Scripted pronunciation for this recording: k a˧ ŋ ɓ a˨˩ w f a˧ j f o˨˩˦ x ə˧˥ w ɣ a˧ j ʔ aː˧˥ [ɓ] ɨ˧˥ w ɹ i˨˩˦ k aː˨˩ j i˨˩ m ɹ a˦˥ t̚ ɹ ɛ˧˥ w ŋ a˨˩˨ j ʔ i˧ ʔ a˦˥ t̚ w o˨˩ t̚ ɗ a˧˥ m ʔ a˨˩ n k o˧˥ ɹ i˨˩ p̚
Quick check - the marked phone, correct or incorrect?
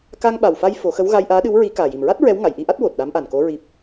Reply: incorrect